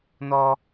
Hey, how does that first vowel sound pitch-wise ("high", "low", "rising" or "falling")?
high